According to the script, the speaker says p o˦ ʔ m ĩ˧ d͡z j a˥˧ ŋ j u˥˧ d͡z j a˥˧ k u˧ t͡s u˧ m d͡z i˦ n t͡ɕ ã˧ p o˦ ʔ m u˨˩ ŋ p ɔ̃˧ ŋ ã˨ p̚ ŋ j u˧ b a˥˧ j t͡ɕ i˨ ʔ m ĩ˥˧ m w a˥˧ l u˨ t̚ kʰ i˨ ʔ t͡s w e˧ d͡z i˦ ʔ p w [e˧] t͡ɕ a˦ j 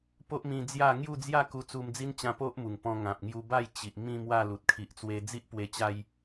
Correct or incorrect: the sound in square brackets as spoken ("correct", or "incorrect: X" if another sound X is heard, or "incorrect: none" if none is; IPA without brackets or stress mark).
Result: correct